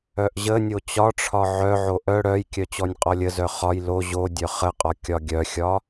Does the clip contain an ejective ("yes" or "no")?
yes